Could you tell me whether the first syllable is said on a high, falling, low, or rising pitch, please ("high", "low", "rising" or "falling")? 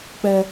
low